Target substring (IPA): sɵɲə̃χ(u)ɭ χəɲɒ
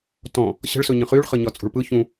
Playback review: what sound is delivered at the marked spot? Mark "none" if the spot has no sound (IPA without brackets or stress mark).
y